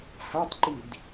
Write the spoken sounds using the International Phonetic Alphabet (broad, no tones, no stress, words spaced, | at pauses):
hatˤǃid